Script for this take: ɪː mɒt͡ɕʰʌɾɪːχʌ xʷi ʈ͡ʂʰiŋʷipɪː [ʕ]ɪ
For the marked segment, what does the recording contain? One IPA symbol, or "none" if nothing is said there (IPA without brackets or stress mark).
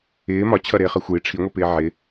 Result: ʕ